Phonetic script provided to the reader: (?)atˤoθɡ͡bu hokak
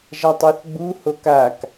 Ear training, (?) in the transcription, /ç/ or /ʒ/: ʒ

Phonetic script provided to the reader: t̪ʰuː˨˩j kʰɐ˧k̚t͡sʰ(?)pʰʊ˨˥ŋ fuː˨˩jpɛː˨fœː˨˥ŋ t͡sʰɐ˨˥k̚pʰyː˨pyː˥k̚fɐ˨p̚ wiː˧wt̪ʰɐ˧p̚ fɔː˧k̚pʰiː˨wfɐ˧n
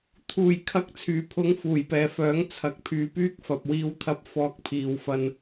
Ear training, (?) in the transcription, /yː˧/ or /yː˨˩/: yː˨˩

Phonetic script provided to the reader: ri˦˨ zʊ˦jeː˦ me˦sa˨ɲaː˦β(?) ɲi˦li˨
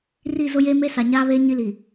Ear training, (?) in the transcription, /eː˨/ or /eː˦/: eː˦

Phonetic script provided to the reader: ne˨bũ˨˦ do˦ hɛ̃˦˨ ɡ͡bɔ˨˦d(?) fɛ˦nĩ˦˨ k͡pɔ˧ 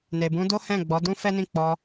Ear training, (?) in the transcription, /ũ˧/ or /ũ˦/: ũ˦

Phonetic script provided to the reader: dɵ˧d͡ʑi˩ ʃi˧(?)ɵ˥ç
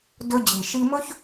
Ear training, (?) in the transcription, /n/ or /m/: m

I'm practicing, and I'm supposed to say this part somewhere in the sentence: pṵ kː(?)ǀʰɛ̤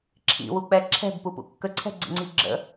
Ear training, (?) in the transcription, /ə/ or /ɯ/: ə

